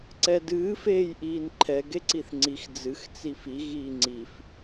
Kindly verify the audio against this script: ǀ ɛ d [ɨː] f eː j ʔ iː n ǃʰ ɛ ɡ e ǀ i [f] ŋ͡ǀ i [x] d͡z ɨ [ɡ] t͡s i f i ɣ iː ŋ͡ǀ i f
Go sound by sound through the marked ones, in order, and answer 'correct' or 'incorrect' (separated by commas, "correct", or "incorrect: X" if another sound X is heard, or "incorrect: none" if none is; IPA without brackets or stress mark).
correct, incorrect: θ, correct, incorrect: x